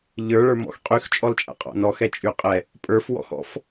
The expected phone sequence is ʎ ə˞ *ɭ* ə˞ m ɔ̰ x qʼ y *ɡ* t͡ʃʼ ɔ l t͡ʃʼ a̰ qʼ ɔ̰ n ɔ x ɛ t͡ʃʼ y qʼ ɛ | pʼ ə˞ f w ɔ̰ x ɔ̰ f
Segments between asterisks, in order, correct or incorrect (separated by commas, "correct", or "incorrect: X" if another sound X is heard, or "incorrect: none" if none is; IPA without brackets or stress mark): correct, incorrect: x